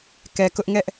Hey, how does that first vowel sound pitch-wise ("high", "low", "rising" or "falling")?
low